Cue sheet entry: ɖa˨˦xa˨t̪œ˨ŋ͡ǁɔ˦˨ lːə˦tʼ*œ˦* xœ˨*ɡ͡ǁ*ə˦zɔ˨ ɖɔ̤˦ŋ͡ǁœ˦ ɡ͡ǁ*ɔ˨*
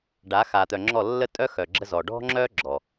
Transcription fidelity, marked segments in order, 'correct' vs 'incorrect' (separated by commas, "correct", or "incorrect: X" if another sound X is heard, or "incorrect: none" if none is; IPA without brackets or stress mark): correct, correct, correct